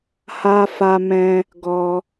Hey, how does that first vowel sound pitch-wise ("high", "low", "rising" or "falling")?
high